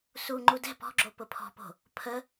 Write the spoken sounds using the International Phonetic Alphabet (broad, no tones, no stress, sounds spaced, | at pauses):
s u ŋ͡ǃ u d ɛ̤ p ɔ̤ ɡ͡ǁ o p ʊ pʰ ɔ̤ p o̤ | pʰ ə